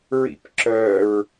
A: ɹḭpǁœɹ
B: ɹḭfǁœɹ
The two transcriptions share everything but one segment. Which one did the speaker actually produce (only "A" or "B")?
A